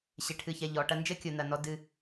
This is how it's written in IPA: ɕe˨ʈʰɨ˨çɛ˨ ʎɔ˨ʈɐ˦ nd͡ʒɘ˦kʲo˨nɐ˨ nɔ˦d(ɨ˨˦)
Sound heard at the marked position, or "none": ɨ˦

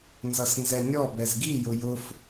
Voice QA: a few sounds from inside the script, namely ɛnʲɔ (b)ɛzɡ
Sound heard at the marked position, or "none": b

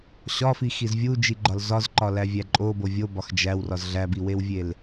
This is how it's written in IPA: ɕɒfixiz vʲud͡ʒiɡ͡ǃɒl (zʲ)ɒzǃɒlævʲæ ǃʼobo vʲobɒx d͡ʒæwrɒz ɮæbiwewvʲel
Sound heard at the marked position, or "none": z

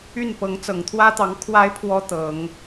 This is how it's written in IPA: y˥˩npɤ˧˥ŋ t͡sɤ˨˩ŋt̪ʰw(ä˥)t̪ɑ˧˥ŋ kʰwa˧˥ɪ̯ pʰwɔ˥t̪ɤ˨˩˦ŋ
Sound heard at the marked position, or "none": ä˥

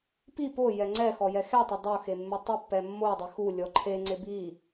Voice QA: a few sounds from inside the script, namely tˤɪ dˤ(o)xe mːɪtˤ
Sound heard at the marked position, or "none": o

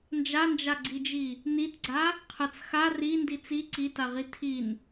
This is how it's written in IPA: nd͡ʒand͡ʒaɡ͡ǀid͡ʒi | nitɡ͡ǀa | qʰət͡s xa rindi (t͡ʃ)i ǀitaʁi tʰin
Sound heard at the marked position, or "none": t͡s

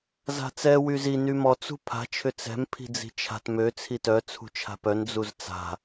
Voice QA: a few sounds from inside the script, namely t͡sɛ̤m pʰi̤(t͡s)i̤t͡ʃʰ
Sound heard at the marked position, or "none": d͡z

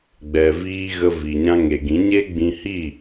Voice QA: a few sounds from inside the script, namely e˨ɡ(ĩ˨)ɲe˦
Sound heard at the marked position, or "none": ĩ˨˦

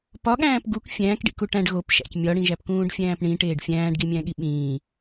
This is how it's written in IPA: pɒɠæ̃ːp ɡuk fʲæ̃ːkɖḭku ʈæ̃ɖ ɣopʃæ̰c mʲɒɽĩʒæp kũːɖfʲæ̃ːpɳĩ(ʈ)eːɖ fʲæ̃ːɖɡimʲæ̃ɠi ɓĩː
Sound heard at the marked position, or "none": ʈ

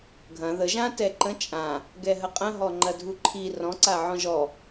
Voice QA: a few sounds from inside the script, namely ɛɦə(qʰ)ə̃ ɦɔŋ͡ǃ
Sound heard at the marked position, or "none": qʼ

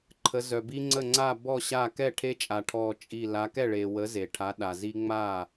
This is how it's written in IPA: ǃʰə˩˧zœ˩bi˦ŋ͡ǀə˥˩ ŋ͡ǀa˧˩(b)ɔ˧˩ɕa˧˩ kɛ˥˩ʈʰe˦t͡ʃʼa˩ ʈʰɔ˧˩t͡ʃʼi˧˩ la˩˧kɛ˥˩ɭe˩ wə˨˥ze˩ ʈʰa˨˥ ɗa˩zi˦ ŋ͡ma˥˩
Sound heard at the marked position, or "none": b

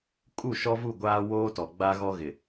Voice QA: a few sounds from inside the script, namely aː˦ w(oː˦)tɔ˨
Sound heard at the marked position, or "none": oː˦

